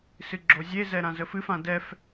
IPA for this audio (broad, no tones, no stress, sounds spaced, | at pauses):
s ɨ ɡ͡ǁ o zʲ e z ɛ ɾ ã z ə f ɨ f ã d ɛ f